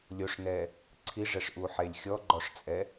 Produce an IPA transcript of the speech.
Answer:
lʲ o ʂ n ɛ | ǀʰ i ʐ ɛ ʂ ʔ u ħ e lʲ xʲ ɔ ɡ͡ǃ ɔ ʂ t͡sʼ ɛ

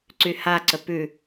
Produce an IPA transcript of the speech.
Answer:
ǀ y h a ǀ ə p ʉ

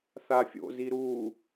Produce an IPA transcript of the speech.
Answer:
θ a fʲ o̰ z i ɾ uː

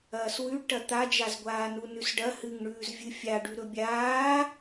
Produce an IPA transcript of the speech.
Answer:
ɐː s w ʉ ɖ ʈ ɐ t̪ a d͡ʒ a z ɡʷ aː n u n ʉ s ɖ ɐ h ɨ ŋ ɳ ʉː z vʲ ɨ fʲ a ɖ ʉ ɾ ɵ bʲ aː

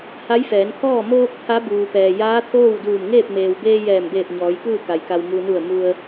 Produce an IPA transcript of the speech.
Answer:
h a˧˥ j f ɛː˩˧ n kʰ ɔː˥˨ m oː˧ k̚ t̪ʰ a˧˥ b uː˩ p ɛː˩ j aː˧˥ t̪ʰ oː˥˨ w d uː˧˩ m ŋ eː˥˨ p̚ m eː˩ w b eː˧ j ɛː˧˩ m b eː˧˩ p̚ ɲ ɔː˩˧ j k ɯː˥˨ k a˩ j k a˩ w m u˩ n u˧˩ ə̯ m u˧ ə̯

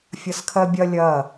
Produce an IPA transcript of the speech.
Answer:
fʲ ɐ s kʰ ɜ bʲ ɐ lʲ ɐ

